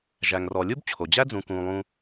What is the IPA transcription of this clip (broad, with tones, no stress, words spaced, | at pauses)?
ʒæ˩ŋrɔ˩ lʲu˥bt͡ɕʰo˩d͡ʑæ˥ d͡zũ˩kũː˩lˠũː˨